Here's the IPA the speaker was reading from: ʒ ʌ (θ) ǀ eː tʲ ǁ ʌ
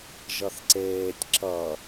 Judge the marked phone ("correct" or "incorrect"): correct